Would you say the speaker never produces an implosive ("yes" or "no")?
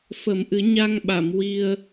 no